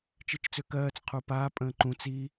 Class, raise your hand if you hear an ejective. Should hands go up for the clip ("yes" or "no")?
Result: yes